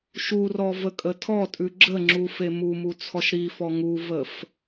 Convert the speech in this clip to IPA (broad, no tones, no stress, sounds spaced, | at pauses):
ʃ u r ɔ v ə kʼ ə tʰ ɔ tʼ ʉ ɡ͡ǁ ə ŋ͡ǁ u f e m u m u t͡sʰ ɔ ʃ ɾ i f ɔ ŋ u v ə f